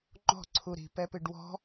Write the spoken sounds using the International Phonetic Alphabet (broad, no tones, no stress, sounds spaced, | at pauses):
ŋ͡ǃ ɔ̤ ǀʰ u ɾ i̤ p ɛ p ɨ ɖ w ɔ̤